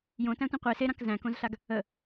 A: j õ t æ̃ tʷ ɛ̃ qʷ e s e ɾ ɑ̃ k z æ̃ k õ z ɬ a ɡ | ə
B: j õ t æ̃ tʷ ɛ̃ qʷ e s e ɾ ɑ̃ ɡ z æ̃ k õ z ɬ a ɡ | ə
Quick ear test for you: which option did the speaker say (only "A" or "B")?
A